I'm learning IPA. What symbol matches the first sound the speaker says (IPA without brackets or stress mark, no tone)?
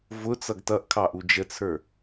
v